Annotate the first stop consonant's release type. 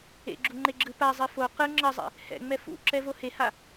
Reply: click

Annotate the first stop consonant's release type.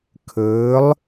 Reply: aspirated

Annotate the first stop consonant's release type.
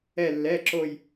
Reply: click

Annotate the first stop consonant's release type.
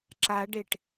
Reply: click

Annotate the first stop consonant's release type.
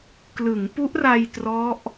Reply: plain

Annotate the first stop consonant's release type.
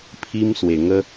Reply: aspirated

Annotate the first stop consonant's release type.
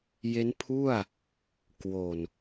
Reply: aspirated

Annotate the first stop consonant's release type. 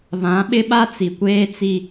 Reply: implosive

